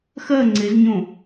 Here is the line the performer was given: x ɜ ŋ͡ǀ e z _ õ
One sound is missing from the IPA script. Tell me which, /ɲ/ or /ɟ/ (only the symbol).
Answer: ɲ